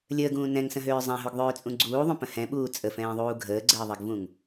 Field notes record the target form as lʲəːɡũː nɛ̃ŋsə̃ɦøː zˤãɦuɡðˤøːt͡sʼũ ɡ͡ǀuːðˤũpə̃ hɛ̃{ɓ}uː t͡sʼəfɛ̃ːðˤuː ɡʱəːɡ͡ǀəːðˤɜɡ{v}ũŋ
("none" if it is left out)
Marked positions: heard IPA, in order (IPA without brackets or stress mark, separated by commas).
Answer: ɓ, v